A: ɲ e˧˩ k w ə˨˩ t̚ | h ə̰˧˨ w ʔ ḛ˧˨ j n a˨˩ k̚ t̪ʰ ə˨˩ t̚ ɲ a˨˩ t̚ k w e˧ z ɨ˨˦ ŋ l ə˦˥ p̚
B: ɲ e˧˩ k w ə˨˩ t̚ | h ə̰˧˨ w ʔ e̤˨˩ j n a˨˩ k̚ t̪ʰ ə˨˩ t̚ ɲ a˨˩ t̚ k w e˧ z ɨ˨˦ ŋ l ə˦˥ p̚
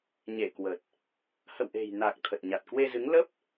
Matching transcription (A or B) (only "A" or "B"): B